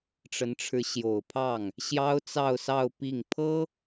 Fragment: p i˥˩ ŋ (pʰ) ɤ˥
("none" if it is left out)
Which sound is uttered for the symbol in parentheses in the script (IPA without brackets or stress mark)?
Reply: pʰ